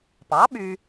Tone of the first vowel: rising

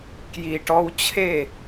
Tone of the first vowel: low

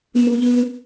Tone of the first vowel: high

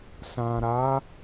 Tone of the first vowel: low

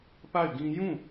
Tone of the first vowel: falling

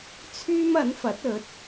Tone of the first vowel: high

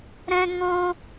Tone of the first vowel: high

